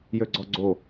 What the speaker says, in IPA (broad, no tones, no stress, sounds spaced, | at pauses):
j ø ɡ͡ǀ ɔ ɡ͡ǀ o